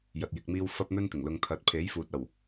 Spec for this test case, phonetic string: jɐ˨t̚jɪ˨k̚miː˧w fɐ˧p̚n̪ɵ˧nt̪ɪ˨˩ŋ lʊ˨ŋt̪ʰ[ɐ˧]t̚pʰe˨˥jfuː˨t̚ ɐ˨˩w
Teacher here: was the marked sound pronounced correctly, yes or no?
no